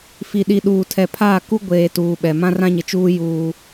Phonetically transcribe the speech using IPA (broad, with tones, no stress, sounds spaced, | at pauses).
f i˨ ɗ i˨ ɗ uː˨ tʰ ɛ˨ pʰ aː˦˨ k u˦ ɡʷ eː˨ t uː˨ ɓ ɛ˨ m ã˦ r ã˦ ɲ ɪ˨ t͡ʃ uː˦ j uː˦